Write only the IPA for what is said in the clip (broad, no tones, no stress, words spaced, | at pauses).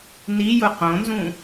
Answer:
nijʊ qõnzũ